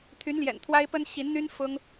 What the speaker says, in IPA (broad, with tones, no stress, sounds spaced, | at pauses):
t̪ʰ y˧˥ n l j ɛ̰˨˩ n t̪ʰ w a˥ ɪ̯ p ə˥ n ɕ i˧˥ n n̪ y˥ n f ʊ˥ ŋ